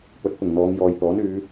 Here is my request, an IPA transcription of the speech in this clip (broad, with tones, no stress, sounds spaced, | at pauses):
p ɵ˨˥ t̚ t̪ ʊ˨˩ ŋ n̪ ɔː˨˧ ŋ j ɔː˨ j t̪ ɔː˨˥ n yː˨˧